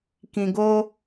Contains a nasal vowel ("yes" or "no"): yes